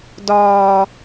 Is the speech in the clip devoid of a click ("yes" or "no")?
yes